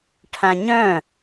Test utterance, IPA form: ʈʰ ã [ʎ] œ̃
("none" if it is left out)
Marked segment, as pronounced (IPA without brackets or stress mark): ɲ